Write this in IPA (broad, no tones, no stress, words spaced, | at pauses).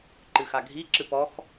ǃɨxaɡʱiǁɨ pɔx